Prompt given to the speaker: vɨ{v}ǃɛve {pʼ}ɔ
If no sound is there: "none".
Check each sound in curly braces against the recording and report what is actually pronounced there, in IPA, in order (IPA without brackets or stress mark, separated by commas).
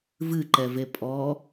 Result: none, pʼ